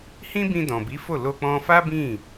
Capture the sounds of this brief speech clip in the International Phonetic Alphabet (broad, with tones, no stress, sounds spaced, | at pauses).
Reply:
h ĩ˦ b ĩ˧ d ɔ̃˨ b i˨˦ f o˦˨ l o˧ k͡p ɔ̃˧ f a˦ b ĩ˦˨